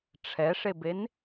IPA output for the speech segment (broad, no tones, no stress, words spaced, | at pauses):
ʈ͡ʂʰɛʂeben